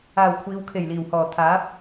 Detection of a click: absent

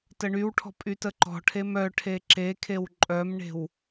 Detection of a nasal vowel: absent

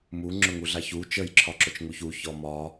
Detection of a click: present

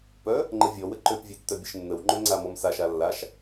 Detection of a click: present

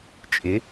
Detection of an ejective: present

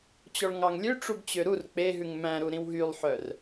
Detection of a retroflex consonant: present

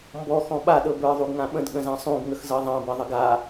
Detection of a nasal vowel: present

